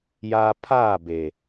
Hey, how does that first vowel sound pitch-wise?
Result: high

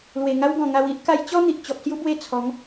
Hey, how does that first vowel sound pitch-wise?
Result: low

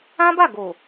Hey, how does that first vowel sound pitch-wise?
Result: high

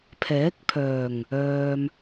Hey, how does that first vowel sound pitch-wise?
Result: rising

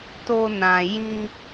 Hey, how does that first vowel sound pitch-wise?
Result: high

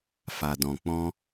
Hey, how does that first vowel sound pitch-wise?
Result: low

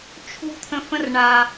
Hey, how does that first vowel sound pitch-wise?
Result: high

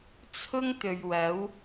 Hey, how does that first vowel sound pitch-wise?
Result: high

